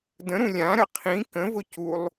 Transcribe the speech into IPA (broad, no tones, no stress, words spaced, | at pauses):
də̃ɾũ lʲãɾə qʰĩ kə̃vʊ culˠ